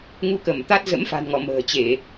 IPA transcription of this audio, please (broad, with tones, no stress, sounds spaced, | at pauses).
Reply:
ŋ u˧ k ə˧˩ m t̪ a˦˥ t̚ z ə̰˧˥ m f a̤˨˩ n ŋ ɔ˧˩ m ə̤ː˨˩ t͡ɕ e˧˩˨